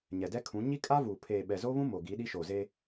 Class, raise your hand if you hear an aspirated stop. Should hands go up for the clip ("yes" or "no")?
yes